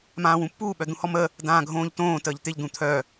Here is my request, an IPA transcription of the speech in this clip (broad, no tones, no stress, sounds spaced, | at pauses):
m ãː w ũ pː uː ɓ œ d̪ ũ h ɔ m ə | d ãː ɡʱ õː ʎ t õː t əː ʎ t̪ ɪ ʎ d̪ ũ t̪ʰ œ